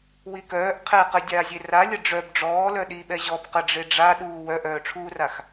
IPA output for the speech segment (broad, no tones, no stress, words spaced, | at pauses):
wikœːʔ qʰɛ qədʲaːzʲe ralʲə ɖ͡ʐœb ɖ͡ʐɔː lœɗiɓɛ ʑɔb qə ɖ͡ʐeɖ͡ʐaɗuː wœʔœːʈ͡ʂʰuːrax